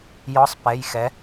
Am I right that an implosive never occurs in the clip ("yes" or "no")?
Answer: yes